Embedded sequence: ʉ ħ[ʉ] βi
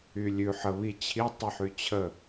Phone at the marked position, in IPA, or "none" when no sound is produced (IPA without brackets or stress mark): ə